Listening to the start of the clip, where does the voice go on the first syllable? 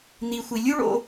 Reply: low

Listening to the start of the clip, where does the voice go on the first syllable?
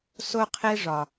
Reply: high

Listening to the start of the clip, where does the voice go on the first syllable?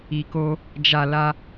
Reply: low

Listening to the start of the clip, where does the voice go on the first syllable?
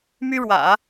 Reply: high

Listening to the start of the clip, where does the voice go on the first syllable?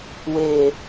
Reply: low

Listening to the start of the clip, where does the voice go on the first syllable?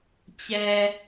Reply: low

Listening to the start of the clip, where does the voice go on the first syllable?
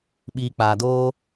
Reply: low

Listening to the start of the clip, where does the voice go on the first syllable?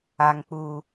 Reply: high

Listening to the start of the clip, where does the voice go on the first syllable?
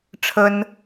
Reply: high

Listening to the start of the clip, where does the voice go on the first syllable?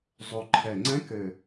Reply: low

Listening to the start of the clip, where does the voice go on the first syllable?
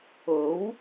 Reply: rising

